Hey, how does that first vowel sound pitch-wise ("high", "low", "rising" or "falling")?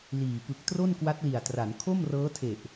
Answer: low